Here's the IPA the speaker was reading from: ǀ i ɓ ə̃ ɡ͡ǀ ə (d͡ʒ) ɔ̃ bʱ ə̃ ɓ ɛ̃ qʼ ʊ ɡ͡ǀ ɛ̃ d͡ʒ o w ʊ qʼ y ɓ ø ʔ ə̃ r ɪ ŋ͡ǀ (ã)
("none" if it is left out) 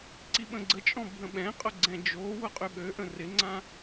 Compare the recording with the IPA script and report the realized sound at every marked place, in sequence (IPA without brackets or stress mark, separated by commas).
t͡ʃʼ, ã